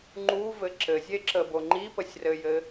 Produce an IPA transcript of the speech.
ŋ͡ǃ u v ɘ ǁ ɘ zʲ e ǁ ə b o ŋ͡ǃ i p ə sʲ r ɘ j ɘ

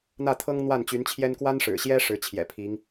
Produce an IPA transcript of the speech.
n̪ ä˥˩ t̪ʰ ɤ˥ ŋ n̪ w a˥˩ n t͡ɕ y˧˥ n t͡ɕʰ j ɛ˥ n k w a˥ n ʂ ɻ̩˨˩ ɕ j ɛ˥ ʂ ɻ̩˧˥ t͡ɕʰ j ɛ̰˨˩ pʰ i˧˥ ŋ

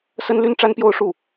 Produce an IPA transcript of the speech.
s ə˥ n l y˥ n ʈ͡ʂ a˥ n p j o˥˧ ʊ̯ ʂ u˥˩

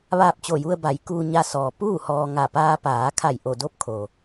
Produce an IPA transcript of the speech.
ʋ aː˧ p̚ t͡ɕ o˧˩ j u˧ ə̯ b a˩˧ j k uː˧ ɲ a˧ s ɔː˩ p uː˥˨ h ɔː˧ ŋ a˧˩ p aː˧ p aː˩˧ kʰ a˧˩ j ʔ o˧˩ d o˧˥ p̚ kʰ o˩

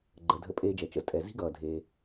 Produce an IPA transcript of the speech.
ɡ͡ǃ ə˩ dʱ ə̰˧ pʼ eː˧ d͡ʒ ɛ˩ t͡ʃ ə̰˩ z tʼ ɛ˩ z i̤˥ ɡ ʌː˩ dʱ eː˩

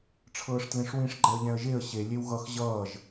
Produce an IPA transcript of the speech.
ʈ͡ʂʰ ɤː ʂ t l ẽ ʂ w ĩ ʂ ɡ͡ǃ ɛ ə̯ ʎ ɛ̃ ə̯ ʒ e ə̯ ɕ e lʲ e w ɣ ʌ x ʑ ʌː ʒ

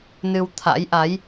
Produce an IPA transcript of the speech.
n ɨ˧ w t̪ʰ a̰˧˥ j ʔ a˨˦ j

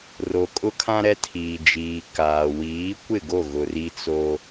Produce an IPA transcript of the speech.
r o˨ kʼ ʊ˦ kʰ ã˦ ɾ ɛ˦ tʰ iː˨ d͡ʒ iː˨ k aː˨ w iː˨˦ kʷ ɪ˦˨ ɡ o˦˨ ɣ ʊ˨ r i˦ t͡s o˦

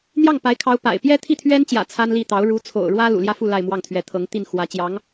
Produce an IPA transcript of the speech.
n̪ j ɑ˥˩ ŋ p a˧˥ ɪ̯ kʰ ɑ˧˥ ʊ̯ p a̰˨˩ ɪ̯ p j ɛ˥ t̪ʰ i˥˩ t̪ʰ ɥ ɛ˥ n t͡ɕ j ä̰˨˩ t͡sʰ a˥ n l i˥˩ t̪ ɑ˧˥ ʊ̯ ɻ u˧˥ t͡sʰ o̰˨˩ ʊ̯ ɻ w ä˥ l ṵ˨˩ l j ä˥˧ f u˥˧ l a˥˧ ɪ̯ m w ɑ˥˩ ŋ t̪ʰ ɥ ɛ˧˥ t̪ʰ ɤ˧˥ ŋ t̪ i˥˩ n x w ä˥ t͡ɕ j ɑ˧˥ ŋ

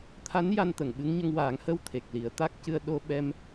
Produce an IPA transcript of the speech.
t̪ʰ a˧˥ n j a˧ n t̪ ə˨˩˨ ŋ ɓ ɨ˧˥ ŋ ɲ ə˧ ŋ w aː˨˩˦ ŋ h ə˧ w t̪ʰ e˨˩ k̚ l i˨˩˦ ə̯ t̪ a˦˥ k̚ c ɨ˧ ə̯ ɗ o˧ ɓ ɛ˧ m

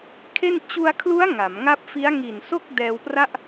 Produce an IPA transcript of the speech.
kʰ e˥˩ n t͡ɕ u˧ a̯ kʰ l u˦˥ a̯ ŋ a˩˦ m ŋ a˥˩ p̚ f i˦˥ a̯ ŋ i˨˩ n s o˥˩ k̚ d ɛː˧ w p r a˥˩ ʔ

